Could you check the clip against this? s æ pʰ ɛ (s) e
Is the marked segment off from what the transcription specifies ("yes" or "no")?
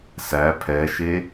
yes